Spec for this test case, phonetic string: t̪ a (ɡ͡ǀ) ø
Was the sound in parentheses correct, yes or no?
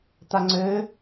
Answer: no